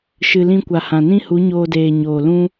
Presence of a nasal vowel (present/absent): present